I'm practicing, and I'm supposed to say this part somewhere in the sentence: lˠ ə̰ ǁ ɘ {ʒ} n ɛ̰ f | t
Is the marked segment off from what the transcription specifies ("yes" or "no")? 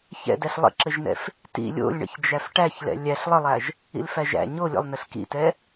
no